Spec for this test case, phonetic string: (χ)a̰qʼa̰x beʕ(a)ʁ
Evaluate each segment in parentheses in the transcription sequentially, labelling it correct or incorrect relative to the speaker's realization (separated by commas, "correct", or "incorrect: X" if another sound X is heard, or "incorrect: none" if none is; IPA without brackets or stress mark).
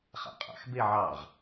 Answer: correct, incorrect: ɑ